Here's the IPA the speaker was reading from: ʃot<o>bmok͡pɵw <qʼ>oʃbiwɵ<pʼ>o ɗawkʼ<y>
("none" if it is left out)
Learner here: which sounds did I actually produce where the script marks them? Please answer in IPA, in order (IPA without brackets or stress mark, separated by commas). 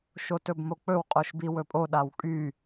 ɵ, qʼ, pʼ, y